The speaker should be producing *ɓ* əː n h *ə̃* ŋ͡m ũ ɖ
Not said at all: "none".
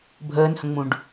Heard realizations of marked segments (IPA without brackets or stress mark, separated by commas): bʱ, ə̃